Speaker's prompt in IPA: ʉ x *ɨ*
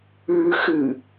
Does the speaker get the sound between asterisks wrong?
no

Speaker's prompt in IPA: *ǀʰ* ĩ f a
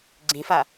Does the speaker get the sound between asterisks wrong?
yes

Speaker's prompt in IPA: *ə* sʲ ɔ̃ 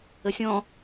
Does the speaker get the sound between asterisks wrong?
no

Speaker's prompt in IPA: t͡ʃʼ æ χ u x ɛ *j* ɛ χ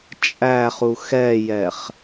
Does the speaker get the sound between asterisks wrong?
no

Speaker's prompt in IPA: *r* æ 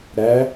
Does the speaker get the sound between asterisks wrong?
yes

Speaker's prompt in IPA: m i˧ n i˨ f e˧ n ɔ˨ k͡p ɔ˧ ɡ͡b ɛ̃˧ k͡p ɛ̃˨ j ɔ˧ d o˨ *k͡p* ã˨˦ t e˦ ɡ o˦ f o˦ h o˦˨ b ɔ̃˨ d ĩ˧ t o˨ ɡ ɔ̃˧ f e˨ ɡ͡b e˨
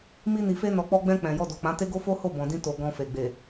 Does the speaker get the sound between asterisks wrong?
no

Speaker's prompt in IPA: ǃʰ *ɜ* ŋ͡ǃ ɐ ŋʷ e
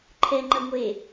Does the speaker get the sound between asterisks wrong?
yes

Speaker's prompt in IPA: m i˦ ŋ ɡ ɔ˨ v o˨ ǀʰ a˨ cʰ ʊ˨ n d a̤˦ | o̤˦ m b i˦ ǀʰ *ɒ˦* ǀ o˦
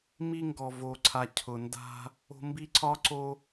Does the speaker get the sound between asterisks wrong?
no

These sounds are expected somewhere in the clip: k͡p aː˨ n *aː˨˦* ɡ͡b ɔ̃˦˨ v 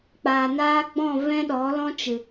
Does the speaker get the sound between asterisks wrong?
yes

